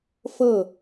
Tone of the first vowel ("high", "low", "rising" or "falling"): falling